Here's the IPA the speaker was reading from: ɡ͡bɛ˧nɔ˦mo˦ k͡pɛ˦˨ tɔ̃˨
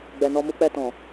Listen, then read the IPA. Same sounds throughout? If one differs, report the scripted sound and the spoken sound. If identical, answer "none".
o˦ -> u˦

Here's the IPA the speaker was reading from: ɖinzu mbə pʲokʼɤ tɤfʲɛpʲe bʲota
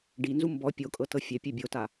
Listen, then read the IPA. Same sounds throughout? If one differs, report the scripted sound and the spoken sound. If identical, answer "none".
ə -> ɔ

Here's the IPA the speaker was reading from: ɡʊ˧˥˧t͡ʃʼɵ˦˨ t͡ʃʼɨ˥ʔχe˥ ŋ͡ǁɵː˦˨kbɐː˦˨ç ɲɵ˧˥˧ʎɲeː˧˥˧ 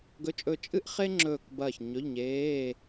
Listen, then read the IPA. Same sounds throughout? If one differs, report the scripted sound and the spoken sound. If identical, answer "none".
ʊ˧˥˧ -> ɵ˧˥˧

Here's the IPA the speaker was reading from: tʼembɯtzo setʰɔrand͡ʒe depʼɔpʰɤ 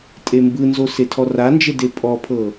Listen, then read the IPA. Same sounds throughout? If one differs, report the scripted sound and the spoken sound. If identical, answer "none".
t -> n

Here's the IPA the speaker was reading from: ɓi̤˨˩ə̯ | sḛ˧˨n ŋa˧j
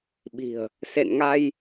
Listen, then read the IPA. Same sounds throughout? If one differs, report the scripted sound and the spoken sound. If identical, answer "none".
none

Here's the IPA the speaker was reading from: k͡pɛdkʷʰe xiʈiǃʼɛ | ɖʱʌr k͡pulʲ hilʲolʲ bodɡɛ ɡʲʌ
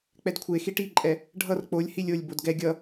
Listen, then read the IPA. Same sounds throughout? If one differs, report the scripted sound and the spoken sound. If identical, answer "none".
u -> o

